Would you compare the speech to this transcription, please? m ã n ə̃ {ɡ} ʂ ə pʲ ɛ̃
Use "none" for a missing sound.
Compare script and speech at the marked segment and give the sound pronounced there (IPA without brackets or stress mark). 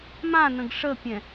ɡ